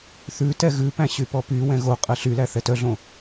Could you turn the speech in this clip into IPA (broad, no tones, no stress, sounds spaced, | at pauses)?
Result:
θ ʉ t ɛ ɣ ʉ p æ̃ ɕ y p ɔ p y w ɛ̃ ɣ o qʼ ɛ ɬ y l æ θ ɛ t œ ɮ õ